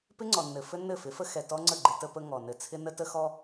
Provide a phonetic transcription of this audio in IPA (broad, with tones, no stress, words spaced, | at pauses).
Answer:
pɪ˦ŋ͡ǀɔ˨nːɘ˨ fɘ˦nːɘ˦˨fɪ˨˦fə˦ xɛ˨tɔ˦ŋ͡ǀə˦˨ ɡ͡ǃɪ˦ tə˦pə˦ ŋɔ˨ nɘ˨t͡sʰɪ˦ nə˦tə˦xɔ˦